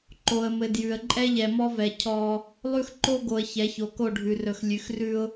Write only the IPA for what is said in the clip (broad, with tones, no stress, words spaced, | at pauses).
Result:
ǃo˨ə̯mɘ˨ djʉ˨ə̯ ǃʼɛ˦ʎɛ˨mɔ˦vɛ˨ cʰɔ˦ | lˠʉ˦xǃo˦ɡo˨ə̯ çɛ˨˦ço˨ko˦˨ɖʱʉ˨ rɵ˨x lʲʉ˨xrʉ˦ʊ̯